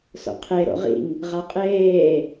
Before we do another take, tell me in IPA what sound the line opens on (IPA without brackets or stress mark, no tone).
s